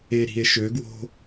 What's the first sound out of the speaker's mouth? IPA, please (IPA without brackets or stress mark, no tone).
e